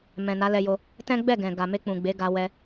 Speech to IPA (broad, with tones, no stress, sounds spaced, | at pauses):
m ɛ̃˨ n a˨˦ l ɛ˧ j o˧ | t ɛ̃˦ ɡ͡b ɛ˦˨ ɡ ɛ̃˨ ɡ a˨ m e˧ k͡p ũ˨ ɡ͡b e˨˦ ɡ a˧ w ɛ˧